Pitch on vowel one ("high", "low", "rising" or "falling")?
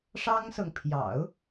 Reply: high